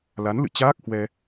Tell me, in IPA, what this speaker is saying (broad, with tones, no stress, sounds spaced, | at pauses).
l a˨˦ n l ɨ̰˧˨ t͡ɕ aː˦˥ k̚ h w ɛ˧